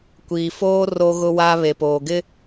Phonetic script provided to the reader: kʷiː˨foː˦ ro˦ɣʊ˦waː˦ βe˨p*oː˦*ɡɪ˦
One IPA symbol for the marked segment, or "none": oː˨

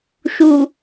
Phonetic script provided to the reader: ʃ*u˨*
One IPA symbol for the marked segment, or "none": u˨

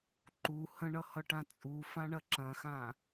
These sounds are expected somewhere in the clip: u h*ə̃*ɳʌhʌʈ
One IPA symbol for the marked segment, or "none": ə̃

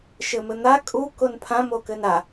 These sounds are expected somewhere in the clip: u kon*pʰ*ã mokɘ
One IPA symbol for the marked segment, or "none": pʰ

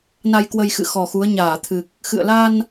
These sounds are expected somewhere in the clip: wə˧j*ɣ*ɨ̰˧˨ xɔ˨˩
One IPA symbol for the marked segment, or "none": x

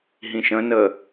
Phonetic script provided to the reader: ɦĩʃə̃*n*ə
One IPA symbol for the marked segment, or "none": n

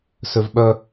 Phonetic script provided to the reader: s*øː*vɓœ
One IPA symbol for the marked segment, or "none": ø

